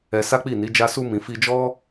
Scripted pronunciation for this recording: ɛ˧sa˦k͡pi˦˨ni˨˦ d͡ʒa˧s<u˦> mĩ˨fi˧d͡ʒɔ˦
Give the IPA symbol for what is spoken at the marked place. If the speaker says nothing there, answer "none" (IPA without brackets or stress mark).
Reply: u˧